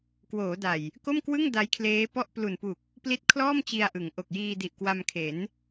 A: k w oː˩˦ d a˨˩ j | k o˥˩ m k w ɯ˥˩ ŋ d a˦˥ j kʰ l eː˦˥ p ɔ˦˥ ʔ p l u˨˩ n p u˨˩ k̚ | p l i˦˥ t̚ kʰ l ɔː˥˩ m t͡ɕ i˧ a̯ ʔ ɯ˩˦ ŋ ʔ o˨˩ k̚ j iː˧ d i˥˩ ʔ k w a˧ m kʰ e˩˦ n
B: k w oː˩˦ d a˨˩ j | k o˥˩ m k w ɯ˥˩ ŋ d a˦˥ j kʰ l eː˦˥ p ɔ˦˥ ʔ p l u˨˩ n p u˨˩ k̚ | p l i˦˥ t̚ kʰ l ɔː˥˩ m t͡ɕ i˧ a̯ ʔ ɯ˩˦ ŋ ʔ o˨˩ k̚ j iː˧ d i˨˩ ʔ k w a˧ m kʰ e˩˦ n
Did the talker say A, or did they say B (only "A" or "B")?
B